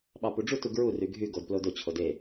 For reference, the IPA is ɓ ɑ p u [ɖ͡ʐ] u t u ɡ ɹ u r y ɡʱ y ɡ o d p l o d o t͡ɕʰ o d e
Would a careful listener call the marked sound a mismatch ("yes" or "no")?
no